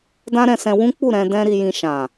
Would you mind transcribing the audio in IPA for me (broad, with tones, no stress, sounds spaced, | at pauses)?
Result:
d ã˦ ɾ ɛ̃˧ s ɛ̃˧ w ũ˦ k͡p u˦˨ ɾ ɛ̃˧ d ɛ̃˦ ɾ i˧ j ĩ˧ ʃ ã˨